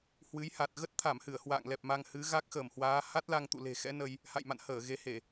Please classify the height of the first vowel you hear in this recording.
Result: high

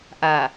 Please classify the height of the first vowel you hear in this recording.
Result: low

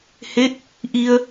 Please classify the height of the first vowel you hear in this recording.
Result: mid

